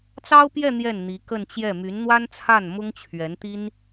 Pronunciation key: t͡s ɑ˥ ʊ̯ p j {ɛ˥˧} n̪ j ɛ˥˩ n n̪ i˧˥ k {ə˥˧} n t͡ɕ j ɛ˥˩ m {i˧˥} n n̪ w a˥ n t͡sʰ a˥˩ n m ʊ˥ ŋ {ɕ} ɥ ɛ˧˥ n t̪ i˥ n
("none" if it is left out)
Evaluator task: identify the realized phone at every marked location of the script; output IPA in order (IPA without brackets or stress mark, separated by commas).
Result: ɛ˥˧, ə˥˧, y˧˥, t͡ɕʰ